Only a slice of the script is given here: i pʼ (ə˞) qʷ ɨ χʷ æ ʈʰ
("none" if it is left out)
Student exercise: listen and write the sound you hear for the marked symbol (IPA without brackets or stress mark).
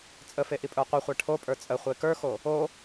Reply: ə˞